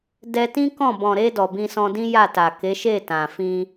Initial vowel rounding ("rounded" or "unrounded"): unrounded